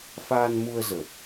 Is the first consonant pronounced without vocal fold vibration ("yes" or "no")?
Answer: yes